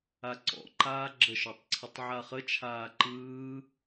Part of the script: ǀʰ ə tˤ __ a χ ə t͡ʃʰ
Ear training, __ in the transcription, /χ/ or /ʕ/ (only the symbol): ʕ